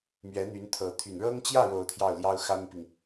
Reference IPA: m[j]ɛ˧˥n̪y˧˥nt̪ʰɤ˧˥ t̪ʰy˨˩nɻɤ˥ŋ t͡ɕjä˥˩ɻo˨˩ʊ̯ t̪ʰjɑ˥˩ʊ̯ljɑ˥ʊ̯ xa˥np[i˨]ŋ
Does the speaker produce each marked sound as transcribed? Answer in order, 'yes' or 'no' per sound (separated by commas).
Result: no, yes